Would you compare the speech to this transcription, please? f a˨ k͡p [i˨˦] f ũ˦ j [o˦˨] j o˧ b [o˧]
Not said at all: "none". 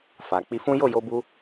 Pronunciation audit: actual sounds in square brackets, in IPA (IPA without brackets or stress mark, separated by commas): i˧, o˦˨, u˧